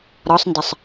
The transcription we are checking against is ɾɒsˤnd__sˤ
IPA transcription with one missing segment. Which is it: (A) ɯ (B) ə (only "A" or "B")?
B